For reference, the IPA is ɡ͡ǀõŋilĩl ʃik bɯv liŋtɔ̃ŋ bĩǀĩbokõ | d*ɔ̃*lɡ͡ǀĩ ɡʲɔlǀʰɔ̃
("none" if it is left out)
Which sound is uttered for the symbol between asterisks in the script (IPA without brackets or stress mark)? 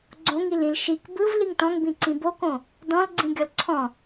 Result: ɔ̃